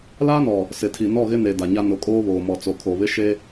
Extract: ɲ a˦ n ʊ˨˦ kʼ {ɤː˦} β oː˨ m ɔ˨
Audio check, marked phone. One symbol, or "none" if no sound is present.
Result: oː˦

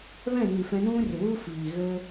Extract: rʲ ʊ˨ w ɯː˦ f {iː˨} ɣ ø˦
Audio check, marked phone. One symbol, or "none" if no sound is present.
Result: iː˨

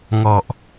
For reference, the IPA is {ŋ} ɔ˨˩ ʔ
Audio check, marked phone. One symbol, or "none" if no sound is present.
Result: ŋ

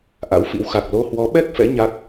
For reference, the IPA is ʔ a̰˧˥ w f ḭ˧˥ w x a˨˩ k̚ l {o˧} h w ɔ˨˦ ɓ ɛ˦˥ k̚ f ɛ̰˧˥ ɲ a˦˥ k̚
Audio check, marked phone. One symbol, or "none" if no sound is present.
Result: o˧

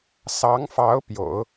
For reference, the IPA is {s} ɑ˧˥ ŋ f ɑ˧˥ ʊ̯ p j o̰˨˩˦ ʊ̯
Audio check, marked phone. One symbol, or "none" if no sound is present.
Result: s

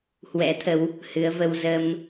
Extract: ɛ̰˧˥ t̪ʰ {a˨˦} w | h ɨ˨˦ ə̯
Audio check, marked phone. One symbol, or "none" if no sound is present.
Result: ə˨˦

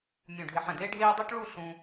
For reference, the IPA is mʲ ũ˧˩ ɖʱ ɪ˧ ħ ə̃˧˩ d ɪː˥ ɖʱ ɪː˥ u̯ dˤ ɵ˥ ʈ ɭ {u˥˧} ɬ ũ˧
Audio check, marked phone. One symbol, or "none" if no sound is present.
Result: u˥˧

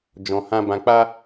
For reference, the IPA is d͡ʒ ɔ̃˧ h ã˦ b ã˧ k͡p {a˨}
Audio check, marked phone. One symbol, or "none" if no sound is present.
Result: a˦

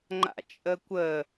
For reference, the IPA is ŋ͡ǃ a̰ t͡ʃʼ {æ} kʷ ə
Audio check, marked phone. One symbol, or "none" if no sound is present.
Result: ə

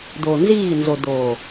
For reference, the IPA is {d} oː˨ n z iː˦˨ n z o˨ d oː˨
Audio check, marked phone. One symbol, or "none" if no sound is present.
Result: d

